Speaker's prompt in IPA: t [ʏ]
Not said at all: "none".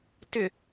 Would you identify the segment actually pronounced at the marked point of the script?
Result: ʏ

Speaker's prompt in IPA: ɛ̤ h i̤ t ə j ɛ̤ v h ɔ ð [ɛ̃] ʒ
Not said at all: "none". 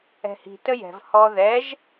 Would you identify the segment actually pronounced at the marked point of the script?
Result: ɛ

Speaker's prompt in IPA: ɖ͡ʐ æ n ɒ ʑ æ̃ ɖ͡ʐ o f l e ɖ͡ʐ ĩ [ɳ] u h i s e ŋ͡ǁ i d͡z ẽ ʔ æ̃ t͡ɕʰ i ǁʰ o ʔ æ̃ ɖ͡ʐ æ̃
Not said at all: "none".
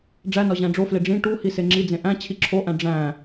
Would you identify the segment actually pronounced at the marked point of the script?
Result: ʈ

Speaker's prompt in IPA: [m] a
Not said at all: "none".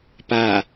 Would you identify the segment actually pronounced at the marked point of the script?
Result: p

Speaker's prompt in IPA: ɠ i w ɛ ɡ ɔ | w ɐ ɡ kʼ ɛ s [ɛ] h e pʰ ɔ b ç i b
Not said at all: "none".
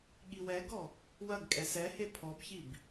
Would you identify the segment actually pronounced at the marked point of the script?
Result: ɛ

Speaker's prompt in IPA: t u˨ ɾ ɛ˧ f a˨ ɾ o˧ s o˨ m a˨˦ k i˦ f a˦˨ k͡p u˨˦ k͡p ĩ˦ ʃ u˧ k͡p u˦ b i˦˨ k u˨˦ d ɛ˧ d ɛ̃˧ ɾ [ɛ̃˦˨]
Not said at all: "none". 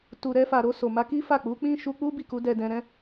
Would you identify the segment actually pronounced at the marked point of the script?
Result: ɛ̃˦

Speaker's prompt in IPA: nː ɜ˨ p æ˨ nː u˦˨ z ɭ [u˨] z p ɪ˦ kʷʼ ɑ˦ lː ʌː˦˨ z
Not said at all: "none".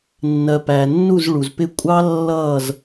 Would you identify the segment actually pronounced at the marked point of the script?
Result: u˨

